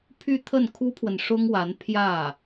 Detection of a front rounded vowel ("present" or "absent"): present